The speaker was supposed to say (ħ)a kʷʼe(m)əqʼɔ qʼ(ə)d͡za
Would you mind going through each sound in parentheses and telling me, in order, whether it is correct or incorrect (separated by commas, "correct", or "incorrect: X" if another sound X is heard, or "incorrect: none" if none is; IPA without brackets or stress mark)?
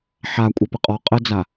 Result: correct, incorrect: p, correct